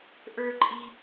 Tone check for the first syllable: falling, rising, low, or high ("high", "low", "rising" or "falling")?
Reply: high